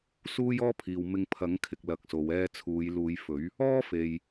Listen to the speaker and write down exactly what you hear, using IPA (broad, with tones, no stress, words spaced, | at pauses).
suː˥jɔː˥pʰiː˨w mɪ˧ŋpʰɐ˨˥ŋkʰɪ˨k̚ lɐ˧k̚so˨˧wɛː˥ t͡sʰuː˨˧j luː˨˧jfɵ˨˥ɥ | ɔː˥ fe˨j